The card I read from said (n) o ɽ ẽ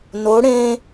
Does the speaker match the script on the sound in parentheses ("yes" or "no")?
yes